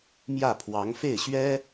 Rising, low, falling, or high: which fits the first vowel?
falling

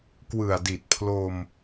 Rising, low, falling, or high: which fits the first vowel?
low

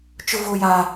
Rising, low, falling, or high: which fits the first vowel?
high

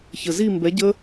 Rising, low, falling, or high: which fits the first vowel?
low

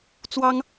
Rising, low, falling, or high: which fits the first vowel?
high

